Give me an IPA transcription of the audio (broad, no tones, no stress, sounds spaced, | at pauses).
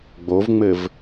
ɡ͡b o v ŋ͡m ɘ v